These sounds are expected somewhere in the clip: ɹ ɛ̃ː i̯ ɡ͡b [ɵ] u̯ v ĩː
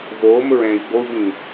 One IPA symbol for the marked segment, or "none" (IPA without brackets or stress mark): o